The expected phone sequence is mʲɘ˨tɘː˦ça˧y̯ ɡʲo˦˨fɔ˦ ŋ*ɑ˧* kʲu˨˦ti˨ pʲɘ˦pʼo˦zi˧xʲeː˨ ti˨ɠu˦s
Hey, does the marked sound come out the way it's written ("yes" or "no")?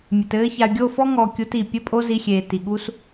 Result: no